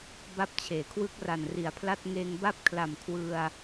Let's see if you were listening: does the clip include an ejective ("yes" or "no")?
no